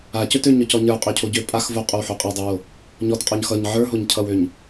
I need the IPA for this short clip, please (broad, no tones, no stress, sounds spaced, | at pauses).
a c ø t ø ɲ ɔ c ɔ ɲ ə˞ qʼ ø cʰ o ɟ ø pʼ a x v o qʼ o w ħ o qʼ a dˤ ø w o | ɲ ɔ t qʼ ɔ ɲ x ʌ ɲ ʕ ə˞ ɦ o ɲ cʰ ʌ w ø ɲ